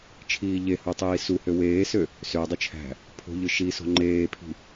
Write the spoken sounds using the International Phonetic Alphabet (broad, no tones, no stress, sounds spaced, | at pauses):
t͡ʃʰ iː ʎ e h u tˤ iː s u h ø w eː s ø | s ø dˤ u t͡ʃʰ æ̤ | pʰ o̤ ʎ ɯ ʃ i s o̤ ŋ͡ǃ eː pʰ i̤